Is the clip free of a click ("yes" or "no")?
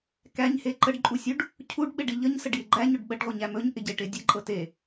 no